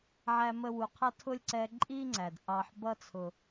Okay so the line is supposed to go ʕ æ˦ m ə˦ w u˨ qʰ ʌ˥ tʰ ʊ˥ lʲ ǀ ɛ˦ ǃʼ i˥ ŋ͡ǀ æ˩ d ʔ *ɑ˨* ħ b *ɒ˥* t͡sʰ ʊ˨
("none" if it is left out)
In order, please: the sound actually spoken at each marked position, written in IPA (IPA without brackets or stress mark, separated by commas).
ɑ˨, ʌ˥